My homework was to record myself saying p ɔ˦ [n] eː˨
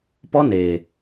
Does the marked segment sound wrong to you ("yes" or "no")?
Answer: no